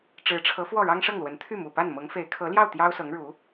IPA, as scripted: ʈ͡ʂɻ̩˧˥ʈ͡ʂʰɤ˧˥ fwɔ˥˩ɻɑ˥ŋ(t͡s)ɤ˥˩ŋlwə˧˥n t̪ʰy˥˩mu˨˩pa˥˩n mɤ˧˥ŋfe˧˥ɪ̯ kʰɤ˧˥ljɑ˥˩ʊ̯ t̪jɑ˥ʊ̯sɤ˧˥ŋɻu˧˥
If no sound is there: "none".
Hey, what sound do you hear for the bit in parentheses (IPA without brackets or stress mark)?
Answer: ʂ